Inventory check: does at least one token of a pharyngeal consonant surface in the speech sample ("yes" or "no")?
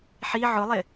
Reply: yes